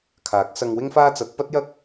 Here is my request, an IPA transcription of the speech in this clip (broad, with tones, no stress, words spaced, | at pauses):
kʰaː˨˥k̚ sɐ˧ŋwɪ˥ŋfaː˥ t͡sɐ˨˥t̚ pɐ˥t̚jɐ˥k̚